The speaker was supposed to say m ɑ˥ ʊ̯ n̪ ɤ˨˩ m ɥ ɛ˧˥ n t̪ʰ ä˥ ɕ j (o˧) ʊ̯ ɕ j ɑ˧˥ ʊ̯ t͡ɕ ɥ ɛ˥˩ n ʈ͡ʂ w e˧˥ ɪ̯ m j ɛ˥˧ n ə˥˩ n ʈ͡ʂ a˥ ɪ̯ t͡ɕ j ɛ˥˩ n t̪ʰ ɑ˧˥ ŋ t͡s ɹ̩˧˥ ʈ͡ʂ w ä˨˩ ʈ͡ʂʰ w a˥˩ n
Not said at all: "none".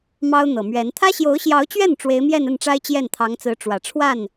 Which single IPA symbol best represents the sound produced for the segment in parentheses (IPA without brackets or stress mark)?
o˧˥